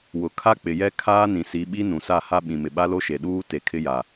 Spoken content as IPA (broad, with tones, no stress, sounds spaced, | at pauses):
w ʊ˨ kʰ a˦ k͡p ɪ˨ j ɛ˦ kʰ aː˦ n ĩ˨ s i˨˦ ɓ i˦ n ũ˨ s a˦˨ h a˦ ɓ ĩ˨ m ɪ˨ ɓ a˦ l o˦ ʃ e˨ ɗ uː˦ t e˨ kʰ ɪ˦ j a˨